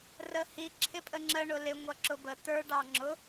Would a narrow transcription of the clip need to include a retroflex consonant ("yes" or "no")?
yes